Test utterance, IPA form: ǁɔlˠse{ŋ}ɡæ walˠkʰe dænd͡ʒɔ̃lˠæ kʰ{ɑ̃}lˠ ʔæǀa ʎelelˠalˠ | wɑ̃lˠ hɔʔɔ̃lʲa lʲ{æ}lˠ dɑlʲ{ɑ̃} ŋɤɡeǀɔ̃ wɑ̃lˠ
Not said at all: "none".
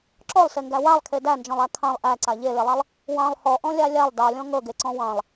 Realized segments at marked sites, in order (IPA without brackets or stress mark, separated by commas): ŋ, ɑ̃, a, ɔ̃